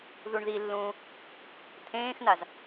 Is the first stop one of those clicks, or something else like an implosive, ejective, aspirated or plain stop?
aspirated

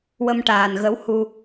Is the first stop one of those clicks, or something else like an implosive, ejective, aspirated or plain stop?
plain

